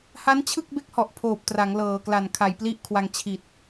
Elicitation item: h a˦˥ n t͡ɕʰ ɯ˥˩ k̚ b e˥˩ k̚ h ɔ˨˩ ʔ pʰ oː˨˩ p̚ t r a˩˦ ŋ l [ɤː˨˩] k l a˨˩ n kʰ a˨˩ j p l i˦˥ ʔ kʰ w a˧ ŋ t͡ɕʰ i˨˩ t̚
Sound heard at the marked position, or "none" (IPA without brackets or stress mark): ɤː˨˩